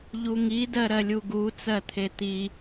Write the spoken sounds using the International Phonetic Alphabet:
ʎ u ŋ i d ɜ ɾ ɜ lʲ u ɡ u t͡s ɜ t̪ʰ e t̪ i

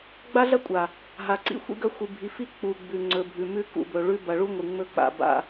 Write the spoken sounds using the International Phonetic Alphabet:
ɡ͡b a˦ ɮ ɐ˦ kʷʼ a˨ | ɦ a˨ ǀ ḭ˦ xʷ ḭ˦ ɡ ɐ˦ xʷ ɨ˨ bʱ i˨ f i˦ k͡p u˨ ɡ͡b ʉ˨ ŋ͡ǀ ɵ˨ bʱ ʉ˨ m ʉ˦ k ṵ˨ b ɵ˨ ɭ ʉ˦ b ɐ˨ ɭ u˦ ŋʷ ɨ˨ ŋ͡m ɵ˦ k͡p a̰˨ b a̰˦˨

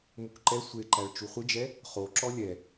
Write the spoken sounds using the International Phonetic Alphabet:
m u k ǃ ɛ sʷ e ǃ æ ɭ t͡ʃ u χʷ ɪ d͡ʒ ɛ | χ o ǁ ɔ lʲ ɛ

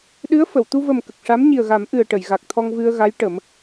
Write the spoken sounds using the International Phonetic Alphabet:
ɗ ɨ˧˥ ə̯ f ə˨˩˨ w t̪ u˧ v ə˨˩ m k ə˨˩ k̚ ʂ a˧˥ m ɲ i˨˩ ə̯ ɣ a˨˩˦ m ʔ ɨ˨˩ ə̯ ʈ ə˨˩˨ j ɣ a˨˩ k̚ t̪ʰ ɔ˧ ŋ v ɨ˧ ə̯ ɣ a˧˥ j ʈ ə˨˩˦ m

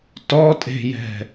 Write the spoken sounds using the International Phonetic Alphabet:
t ɔ tʼ e̤ j ɛ̤

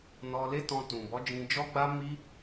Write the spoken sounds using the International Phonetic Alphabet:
n ɔ˧ l e˦ t ɔ̃˧ t ũ˨ b ɔ˨˦ d͡ʒ ĩ˧ d͡ʒ ɔ˦ ɡ͡b a˦ m i˦

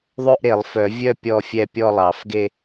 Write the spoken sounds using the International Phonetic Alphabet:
ðˤ ø˥˧ ʔ ɾ e˨˩˦ lˠ f œ˨˩˦ vʲ œ˥˧ pʲ ɔ˥˧ fʲ ɛ˥˧ pʲ ɔ˥˧ lˠ ɑ˨˩˦ f ɡ e˥˧

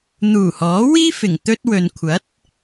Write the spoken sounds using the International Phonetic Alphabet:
n̪ uː˨˩ h ɔː˨˥ w iː˥ f ɪ˨˩ ŋ t̪ ɵ˥ t̚ w ɵ˨ n kʷʰ ɐ˨˥ t̚

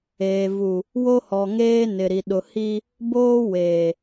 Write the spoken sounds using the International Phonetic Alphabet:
eː˨ v u˨ | w o˦ h ɔ˨ ŋ eː˦ n ɪ˨ ɾ i˨ ɗ ʊ˨ h i˦ | b oː˦ w eː˨

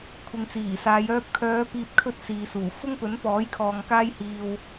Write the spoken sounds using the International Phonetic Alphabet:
kʷʰ ɪ˨ ŋ t͡s iː˨˩ s aː˨˧ j œː˧ p̚ kʰ œː˨˧ p iː˨ p̚ kʰ ɵ˧ t̚ s iː˨ s uː˨˩ f ʊ˥ ŋ p ɵ˨˥ n p ɔː˨˥ j kʰ ɔː˨ ŋ k aː˥ j h iː˧ w

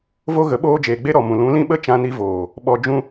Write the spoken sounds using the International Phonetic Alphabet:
v o˦ ɣ ə˨˦ ɓ oː˦ d͡ʒ eː˨ ɡ͡b e˦ ɾ ɔ˨ m ũ˨ l ũ˨˦ l ĩ˦ ɓ ə˦ t͡ʃ ã˧ n i˧ v oː˨ | ɓ ɔ˧ d͡ʒ ũ˦

